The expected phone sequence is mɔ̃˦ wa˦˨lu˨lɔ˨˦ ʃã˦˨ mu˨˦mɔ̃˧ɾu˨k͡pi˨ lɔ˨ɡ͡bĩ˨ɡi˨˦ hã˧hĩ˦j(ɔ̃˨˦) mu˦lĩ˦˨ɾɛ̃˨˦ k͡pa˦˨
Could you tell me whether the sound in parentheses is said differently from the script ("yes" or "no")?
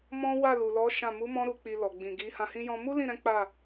yes